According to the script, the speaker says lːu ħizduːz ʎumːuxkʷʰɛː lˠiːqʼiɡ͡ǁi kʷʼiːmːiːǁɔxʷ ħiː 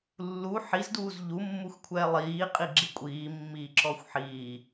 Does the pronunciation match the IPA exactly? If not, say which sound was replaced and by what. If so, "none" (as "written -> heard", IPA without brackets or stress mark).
none